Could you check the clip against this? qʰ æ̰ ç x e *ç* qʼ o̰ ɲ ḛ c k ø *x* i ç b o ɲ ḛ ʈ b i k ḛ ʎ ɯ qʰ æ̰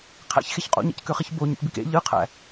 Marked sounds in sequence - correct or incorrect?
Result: correct, incorrect: χ

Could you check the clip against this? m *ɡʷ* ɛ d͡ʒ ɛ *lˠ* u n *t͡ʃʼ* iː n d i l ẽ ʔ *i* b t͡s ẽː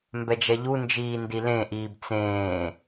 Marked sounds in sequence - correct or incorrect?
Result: incorrect: b, incorrect: ʎ, incorrect: d͡ʒ, incorrect: iː

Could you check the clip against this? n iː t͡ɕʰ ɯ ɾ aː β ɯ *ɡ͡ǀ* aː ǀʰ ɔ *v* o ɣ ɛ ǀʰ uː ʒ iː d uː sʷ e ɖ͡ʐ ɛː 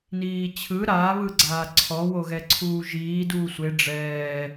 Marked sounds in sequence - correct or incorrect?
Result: correct, incorrect: w

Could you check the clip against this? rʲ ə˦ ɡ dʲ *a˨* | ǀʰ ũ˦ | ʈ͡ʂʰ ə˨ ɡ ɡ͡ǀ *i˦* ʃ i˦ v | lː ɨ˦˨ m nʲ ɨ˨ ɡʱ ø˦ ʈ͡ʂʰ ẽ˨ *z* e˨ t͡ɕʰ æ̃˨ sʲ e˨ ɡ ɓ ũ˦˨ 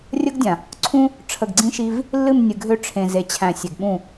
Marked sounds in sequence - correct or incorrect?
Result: incorrect: ã˨, incorrect: ĩ˦, correct

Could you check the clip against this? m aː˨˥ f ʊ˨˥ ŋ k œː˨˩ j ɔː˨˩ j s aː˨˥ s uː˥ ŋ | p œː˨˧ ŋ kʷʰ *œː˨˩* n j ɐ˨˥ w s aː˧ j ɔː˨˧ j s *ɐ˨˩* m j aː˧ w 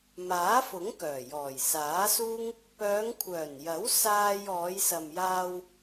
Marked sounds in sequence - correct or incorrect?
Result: correct, incorrect: ɐ˨

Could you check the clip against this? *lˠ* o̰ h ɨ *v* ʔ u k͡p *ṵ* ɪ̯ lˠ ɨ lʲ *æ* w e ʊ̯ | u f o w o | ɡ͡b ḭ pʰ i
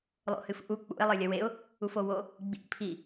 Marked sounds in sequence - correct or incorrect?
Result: correct, incorrect: f, correct, incorrect: ɐ

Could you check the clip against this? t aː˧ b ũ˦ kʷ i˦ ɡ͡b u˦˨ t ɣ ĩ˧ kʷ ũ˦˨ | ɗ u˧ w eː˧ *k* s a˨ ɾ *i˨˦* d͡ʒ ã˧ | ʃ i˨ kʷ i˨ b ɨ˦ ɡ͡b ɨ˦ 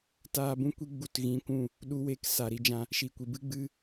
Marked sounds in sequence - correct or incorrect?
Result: correct, correct

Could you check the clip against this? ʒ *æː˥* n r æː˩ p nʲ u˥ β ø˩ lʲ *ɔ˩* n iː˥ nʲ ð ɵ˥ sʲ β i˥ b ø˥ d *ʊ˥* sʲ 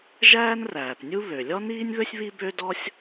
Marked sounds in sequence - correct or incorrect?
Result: correct, incorrect: ɔ˥, incorrect: ɔ˥

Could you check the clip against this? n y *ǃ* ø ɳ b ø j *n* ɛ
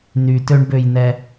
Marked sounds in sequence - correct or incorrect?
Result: incorrect: t, correct

